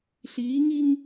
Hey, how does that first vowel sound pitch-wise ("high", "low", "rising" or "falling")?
rising